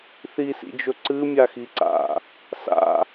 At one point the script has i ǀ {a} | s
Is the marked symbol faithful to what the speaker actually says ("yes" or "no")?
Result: no